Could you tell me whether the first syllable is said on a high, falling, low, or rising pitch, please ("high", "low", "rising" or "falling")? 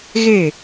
falling